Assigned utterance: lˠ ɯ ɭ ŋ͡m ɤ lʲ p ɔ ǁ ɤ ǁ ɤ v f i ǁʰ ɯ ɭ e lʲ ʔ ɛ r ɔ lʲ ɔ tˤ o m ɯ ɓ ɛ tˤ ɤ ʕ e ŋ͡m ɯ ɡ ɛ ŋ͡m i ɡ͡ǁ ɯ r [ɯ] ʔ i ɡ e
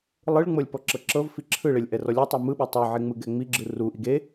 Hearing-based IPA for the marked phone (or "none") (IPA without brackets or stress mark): u